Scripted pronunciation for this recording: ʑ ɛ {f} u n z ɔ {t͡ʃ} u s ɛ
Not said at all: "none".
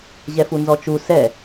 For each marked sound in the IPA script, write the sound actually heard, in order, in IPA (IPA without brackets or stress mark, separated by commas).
f, t͡ʃ